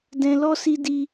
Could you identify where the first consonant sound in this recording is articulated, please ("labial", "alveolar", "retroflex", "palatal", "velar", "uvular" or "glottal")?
alveolar